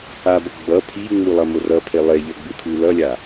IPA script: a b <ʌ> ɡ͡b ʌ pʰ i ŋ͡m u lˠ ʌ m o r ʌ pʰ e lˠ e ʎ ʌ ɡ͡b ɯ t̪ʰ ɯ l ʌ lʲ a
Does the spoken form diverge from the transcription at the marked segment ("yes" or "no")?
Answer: no